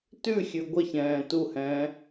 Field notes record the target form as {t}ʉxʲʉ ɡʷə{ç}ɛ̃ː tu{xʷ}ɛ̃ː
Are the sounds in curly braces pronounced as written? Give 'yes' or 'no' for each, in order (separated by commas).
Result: yes, yes, no